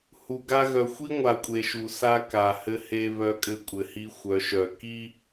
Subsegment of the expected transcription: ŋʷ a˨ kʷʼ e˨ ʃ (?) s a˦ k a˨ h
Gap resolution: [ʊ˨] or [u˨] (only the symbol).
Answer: u˨